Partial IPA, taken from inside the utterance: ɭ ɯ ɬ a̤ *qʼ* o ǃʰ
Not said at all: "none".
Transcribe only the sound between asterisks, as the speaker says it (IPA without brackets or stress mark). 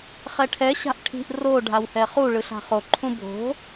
χ